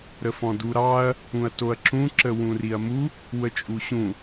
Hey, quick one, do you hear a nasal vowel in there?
yes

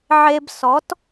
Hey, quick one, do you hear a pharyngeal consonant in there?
yes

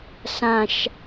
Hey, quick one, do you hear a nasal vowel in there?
yes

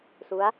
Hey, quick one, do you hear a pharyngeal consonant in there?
no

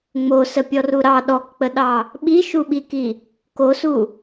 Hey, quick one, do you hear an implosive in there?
yes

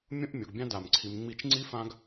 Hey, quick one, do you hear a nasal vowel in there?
yes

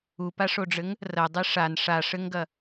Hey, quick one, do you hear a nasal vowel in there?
no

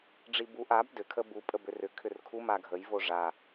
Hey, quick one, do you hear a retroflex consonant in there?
yes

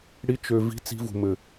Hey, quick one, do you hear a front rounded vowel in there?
yes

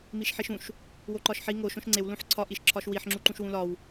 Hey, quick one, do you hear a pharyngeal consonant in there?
yes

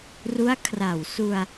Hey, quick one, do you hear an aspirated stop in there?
yes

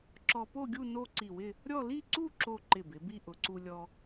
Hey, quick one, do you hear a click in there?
yes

